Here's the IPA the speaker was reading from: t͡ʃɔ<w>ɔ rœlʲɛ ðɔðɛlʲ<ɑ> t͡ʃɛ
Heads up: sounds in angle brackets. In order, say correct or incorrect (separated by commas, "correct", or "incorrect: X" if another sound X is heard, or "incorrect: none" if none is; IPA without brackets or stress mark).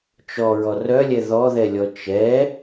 incorrect: ɹ, incorrect: ɔ